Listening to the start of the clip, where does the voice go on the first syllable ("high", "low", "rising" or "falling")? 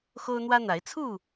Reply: high